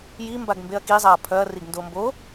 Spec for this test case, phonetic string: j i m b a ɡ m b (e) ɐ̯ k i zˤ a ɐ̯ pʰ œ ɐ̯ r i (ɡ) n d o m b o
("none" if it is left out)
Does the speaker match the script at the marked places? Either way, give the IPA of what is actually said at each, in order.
e, ɡ

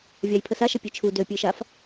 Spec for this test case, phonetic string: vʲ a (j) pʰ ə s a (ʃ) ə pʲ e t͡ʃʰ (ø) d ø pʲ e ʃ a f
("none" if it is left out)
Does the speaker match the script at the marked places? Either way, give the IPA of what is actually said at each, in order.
j, ʃ, u

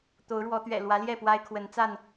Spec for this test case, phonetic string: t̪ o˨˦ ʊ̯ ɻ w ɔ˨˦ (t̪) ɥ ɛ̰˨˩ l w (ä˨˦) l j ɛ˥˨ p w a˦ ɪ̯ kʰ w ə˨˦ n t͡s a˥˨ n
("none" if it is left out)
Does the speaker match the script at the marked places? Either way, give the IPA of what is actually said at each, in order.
t̪, ä˨˦

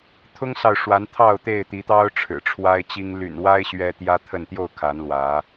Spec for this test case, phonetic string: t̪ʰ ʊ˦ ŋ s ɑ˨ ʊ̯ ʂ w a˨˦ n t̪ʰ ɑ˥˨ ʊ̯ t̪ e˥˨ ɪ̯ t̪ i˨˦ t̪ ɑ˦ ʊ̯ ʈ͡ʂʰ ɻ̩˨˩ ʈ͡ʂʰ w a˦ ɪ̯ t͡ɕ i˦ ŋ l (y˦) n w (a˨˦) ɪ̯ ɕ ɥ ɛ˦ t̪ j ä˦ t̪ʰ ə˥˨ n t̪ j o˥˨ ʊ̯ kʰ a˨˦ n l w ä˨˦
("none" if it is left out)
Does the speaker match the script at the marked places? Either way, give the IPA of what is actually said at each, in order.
y̰˨˩, a˦

